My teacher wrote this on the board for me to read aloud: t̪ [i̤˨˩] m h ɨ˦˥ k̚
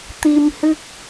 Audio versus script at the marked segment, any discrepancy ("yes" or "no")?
yes